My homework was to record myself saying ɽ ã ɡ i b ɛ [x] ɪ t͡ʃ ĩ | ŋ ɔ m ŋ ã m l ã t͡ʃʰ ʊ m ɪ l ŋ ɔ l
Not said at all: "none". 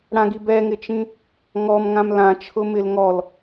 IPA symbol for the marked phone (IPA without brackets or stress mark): ŋ